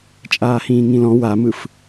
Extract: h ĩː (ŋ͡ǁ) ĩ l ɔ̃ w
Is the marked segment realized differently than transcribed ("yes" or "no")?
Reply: yes